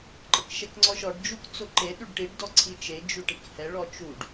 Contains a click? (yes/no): yes